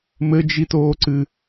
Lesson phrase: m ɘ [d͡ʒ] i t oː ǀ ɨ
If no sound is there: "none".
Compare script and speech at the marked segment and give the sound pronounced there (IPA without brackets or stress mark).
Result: d͡ʒ